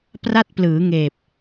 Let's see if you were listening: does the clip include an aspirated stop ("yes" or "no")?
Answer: no